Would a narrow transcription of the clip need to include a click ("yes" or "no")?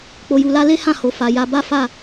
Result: no